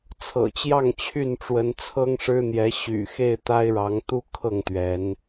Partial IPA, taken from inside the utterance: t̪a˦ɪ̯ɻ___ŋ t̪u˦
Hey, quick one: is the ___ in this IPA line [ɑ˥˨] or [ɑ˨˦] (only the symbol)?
ɑ˨˦